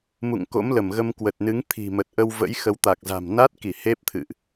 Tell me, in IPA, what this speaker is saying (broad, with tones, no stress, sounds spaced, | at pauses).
m ṵ˧˨ ŋ k o̰˧˥ m l ə˧˩ m ɣ ə˧ m k w ə˨˩ t̚ n ɨ˨˦ ŋ t̪ʰ i̤˨˩ m ə˨˩ t̚ ʔ ə˧ w v ə̰˧˥ j x ə˨˦ w t̪ a˨˩ k̚ z a̤˨˩ m n a˦˥ t̚ k i˧˩ h e˦˥ p̚ t̪ʰ ɨ̰˧˨ ʔ